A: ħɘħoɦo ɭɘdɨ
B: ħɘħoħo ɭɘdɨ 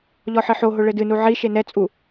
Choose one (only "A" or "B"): A